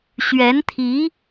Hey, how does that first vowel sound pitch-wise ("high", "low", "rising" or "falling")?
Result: rising